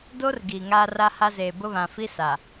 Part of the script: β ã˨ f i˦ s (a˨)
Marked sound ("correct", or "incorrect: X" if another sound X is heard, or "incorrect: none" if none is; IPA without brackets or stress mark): correct